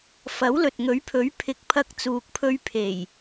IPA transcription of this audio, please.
f ɐ˨˥ w l ɵ˨ t̚ ŋ ɵ˨˥ ɥ pʰ ɵ˨˥ ɥ pʰ ɪ˨˥ k̚ pʰ ɐ˧ k̚ t͡s uː˨ k̚ pʰ ɵ˧ ɥ pʰ e˨˩ j

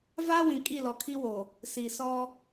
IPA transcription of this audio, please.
v aː˦ w ĩ˨ kʼ i˦˨ l ɔ˨ kʰ i˦ w o˨ | s i˨ s ɔ˦

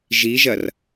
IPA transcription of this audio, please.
ʒ i ʒ ɐ r

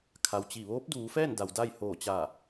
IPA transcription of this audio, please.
kʰ a˩ w t͡ɕ i˧˩ ʋ oː˧˥ p̚ d uː˩˧ f ɛː˥˨ n d a˩ w d a˥˨ j h oː˧˩ t͡ɕ a˧˩

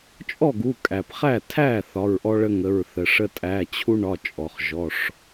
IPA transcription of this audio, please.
t͡ʃʼ ɔ˥˩ ɡ u˩˧˩ kʼ æ˩ p χ æ˥˩ tʰ æ˥˩ θ ɒ˩˧˩ ɹ ʔ ɔ˦ ɭ ə˦ ŋ ə˩˧˩ ɹ θ ə˩ ʂ ə˦ tʼ æ˩˧˩ t͡ɕʰ u˦ ɳ ɒ˩˧˩ t͡ʃʼ ɔ˩ χ ʒ ɔ˩˧˩ ʂ

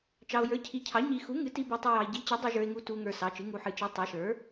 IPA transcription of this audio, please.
t͡ʃ ɑ˨ o̯ j ə˞˩˥ cʰ i˩˥ cʰ ɑ˩˥ ɲ i˨ x u˩˥ ŋ ɨ˩˥ t i˨ b u˨ tˤ i˨ j ɑ˨ e̯ ɟ i˩˥ t͡ɕ ɨ˩˥ dˤ i˨ ʒ ə˞˨ e̯ ŋ u˨ t u˨ ŋ ə˞˨ s ɑ˩˥ t͡ʃ ɨ˩˥ ŋ u˨ ħ ɨ˩˥ t͡ʃ i˩˥ tˤ ɑ˩˥ ʃ ə˞˩˥

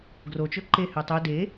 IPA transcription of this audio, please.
ɡ r o t͡ʃ ɵ ǃ e h ø tˤ ø d e

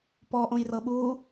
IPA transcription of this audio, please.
p ɔ ʔ õ j r ɤ ɓ u

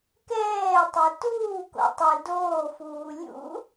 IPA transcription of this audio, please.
k ɛː tˤ ɛ t uː k o̰ tˤ ɛ d oː f uː lʲ ṵ

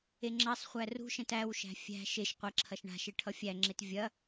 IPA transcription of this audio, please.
e ŋ͡ǁ ɐ sˤ χʷ æ r ṳ ʃ ɛ̃ t æ w ʃ æ̤ fʲ æ̤ ʃ e ʃ qʷ ɐ ǁʰ ɐ ʃ ɳ a̤ ʃ e ʈʰ ʌ fʲ æ ŋ͡ǁ e t vʲ ɐ

